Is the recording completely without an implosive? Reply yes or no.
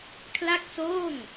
yes